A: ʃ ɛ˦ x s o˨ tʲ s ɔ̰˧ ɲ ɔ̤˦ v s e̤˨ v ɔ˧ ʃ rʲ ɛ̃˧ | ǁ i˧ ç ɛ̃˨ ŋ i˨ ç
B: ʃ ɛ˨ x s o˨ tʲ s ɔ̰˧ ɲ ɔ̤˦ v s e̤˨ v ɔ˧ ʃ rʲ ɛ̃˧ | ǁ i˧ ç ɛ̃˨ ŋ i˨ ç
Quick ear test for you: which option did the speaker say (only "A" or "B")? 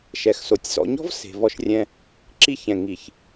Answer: B